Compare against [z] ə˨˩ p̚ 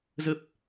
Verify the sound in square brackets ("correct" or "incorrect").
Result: correct